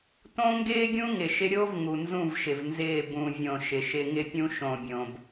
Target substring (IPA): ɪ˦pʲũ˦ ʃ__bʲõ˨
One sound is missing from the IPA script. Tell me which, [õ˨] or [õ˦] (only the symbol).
õ˨